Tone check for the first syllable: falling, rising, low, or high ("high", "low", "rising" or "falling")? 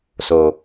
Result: low